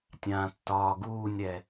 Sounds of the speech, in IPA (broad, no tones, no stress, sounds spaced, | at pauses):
tʲ ãː tː ɒː ɡ uː nʲ ɾ ɛ